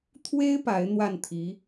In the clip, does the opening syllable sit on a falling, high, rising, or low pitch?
high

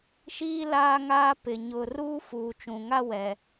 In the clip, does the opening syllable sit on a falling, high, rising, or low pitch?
high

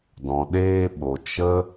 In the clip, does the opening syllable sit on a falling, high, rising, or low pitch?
low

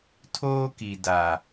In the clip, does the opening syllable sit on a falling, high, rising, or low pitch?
high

